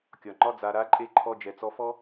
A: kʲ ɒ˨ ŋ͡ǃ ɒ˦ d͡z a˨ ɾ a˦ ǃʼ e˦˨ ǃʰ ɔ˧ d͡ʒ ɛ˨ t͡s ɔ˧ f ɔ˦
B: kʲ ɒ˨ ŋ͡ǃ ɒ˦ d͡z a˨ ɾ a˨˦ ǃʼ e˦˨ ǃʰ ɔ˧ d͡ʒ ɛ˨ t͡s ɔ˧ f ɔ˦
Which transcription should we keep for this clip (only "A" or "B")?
B